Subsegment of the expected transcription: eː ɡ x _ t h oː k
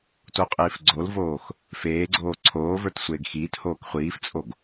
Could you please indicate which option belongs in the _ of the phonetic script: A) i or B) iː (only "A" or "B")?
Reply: B